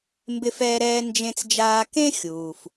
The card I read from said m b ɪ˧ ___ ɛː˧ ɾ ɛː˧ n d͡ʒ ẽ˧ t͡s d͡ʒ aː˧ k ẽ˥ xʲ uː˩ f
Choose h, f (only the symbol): f